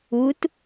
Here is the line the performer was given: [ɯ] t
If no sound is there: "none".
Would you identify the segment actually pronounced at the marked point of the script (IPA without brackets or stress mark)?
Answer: u